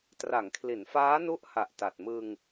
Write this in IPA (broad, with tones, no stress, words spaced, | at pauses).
tra˩˦ŋkʰli˩˦nfaː˦˥nu˦˥ʔ ha˨˩ʔta˨˩t̚ mɯ˧ŋ